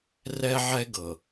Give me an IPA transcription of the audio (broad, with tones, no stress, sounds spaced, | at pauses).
r ɛ˦ ʕ ɛ˦ ɡ ɤ˨